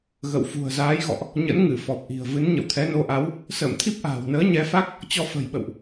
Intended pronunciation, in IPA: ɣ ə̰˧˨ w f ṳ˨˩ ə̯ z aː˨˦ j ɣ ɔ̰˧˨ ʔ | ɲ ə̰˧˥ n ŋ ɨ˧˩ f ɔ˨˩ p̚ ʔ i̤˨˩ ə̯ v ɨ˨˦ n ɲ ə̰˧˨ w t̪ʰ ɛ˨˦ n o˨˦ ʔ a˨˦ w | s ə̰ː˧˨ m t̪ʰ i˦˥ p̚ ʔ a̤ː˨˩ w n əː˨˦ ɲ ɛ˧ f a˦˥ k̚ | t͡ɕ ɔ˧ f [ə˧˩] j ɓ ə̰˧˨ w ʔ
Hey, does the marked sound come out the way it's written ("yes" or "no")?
no